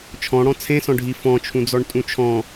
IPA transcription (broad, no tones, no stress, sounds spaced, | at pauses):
t͡ʃʰ ɔ̃ ɽ ɔ̃ t͡sʰ ẽ s ɔ̃ ɖʱ i f ɔ̃ t͡ʃʰ ũ d͡z ɔ ɳ tʼ ũ t͡ʃʰ ɔ̃